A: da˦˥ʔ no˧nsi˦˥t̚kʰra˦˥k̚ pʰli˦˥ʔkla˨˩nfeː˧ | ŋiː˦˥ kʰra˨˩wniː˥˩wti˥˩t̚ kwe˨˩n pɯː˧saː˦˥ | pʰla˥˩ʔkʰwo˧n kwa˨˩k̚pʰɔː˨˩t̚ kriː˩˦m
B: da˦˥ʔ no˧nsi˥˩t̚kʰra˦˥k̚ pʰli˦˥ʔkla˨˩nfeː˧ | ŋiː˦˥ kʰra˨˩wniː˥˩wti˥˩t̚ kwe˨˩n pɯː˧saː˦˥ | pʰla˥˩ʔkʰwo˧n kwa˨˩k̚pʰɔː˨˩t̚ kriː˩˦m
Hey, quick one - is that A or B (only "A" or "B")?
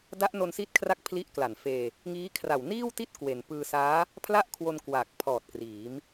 A